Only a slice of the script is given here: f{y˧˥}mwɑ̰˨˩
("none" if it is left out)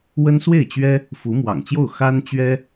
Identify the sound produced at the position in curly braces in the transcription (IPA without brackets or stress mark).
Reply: u˧˥